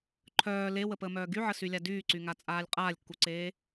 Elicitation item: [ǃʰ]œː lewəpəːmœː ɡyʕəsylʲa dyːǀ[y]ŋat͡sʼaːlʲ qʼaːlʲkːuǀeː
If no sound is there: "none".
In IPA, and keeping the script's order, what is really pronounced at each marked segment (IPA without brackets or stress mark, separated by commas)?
ǃʰ, y